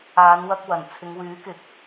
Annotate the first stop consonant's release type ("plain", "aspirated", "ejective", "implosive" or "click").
plain